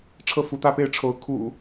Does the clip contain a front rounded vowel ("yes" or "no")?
no